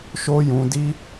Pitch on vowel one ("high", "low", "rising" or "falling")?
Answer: high